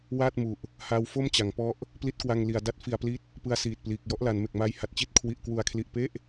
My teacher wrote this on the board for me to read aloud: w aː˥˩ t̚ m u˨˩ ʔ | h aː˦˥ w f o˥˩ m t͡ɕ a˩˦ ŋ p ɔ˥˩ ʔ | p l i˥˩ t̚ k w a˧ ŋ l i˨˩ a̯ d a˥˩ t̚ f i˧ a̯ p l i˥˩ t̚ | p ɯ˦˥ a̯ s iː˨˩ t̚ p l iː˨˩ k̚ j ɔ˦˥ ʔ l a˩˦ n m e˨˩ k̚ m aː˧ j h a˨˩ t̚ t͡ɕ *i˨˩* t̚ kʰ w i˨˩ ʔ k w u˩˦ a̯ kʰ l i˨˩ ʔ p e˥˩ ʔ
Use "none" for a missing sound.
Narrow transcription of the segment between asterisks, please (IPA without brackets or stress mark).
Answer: i˦˥